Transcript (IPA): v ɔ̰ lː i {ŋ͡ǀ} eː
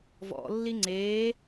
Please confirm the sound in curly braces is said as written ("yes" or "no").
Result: yes